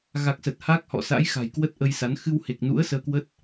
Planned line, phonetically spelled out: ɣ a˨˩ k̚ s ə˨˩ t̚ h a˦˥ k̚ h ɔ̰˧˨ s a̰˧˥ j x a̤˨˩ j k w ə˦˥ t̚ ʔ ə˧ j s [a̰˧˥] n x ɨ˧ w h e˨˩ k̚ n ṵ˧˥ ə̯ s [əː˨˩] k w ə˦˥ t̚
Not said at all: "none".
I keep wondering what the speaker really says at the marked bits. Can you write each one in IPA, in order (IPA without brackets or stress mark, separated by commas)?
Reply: a˨˦, əː˧